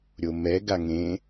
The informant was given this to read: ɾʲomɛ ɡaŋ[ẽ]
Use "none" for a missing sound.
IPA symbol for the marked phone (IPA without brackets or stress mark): ẽ